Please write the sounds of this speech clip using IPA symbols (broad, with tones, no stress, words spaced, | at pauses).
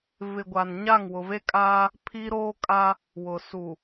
vɪ˨ɡʷa˨n ɲa˦˨ŋwʊ˨ve˦kʼaː˦ | pʰi˦ɾoː˦kʼa˦ | wʊ˨ su˨